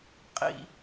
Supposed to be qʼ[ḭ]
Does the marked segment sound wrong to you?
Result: no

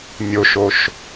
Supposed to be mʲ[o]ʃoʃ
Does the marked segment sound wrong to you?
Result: no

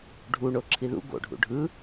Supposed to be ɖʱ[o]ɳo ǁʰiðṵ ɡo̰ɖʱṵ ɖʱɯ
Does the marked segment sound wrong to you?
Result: yes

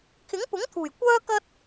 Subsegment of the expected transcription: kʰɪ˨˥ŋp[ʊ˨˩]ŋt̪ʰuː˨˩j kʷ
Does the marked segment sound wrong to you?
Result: yes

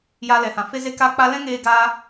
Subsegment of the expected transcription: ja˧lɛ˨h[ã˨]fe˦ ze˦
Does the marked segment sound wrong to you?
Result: no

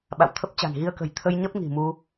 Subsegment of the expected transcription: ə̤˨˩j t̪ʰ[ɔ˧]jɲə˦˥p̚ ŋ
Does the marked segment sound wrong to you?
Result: yes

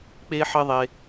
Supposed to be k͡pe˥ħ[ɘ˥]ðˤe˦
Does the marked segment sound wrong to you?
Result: no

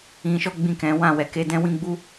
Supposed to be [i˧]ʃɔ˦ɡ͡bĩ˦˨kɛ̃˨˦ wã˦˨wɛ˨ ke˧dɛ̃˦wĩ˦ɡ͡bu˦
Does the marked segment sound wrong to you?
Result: yes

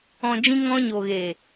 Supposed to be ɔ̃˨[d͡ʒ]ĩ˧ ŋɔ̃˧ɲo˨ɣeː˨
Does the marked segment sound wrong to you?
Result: no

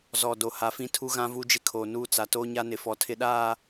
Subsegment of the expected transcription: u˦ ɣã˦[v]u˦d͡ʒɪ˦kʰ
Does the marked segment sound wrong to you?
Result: no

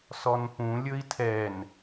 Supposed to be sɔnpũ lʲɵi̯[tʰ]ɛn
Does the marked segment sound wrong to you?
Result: no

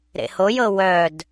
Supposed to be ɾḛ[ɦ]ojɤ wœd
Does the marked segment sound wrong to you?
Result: yes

